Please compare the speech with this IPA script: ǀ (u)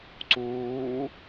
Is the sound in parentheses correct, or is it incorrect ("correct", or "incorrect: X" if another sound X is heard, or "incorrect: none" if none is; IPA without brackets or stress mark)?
incorrect: uː